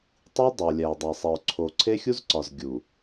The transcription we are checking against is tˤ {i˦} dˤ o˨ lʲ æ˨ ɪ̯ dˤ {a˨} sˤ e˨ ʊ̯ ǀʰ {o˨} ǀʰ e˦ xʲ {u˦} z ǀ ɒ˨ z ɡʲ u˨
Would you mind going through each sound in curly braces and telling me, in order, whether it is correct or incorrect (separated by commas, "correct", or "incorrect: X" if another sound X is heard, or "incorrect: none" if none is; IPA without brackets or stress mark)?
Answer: correct, incorrect: æ˨, correct, correct